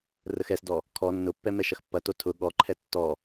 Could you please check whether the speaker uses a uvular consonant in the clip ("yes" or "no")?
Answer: no